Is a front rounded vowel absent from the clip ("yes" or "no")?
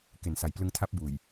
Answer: yes